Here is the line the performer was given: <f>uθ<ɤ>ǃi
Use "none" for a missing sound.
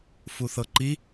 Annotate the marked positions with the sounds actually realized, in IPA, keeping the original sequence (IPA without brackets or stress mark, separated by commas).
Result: f, ɤ